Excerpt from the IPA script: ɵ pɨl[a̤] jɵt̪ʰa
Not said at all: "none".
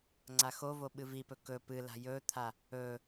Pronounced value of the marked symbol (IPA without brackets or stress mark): a̤